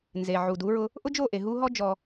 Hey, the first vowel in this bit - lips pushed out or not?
no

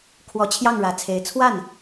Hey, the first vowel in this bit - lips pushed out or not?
yes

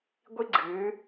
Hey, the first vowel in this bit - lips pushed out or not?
no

